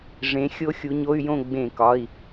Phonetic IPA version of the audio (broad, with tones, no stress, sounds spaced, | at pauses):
ʐ ẽ˨˦ xʲ o˦˥ xʲ u˨˦ ɲ o˧˥˧ y̯ j õ˥˨ ɡ͡b ẽ˧˩˧ k ɒ˩˧˩ i̯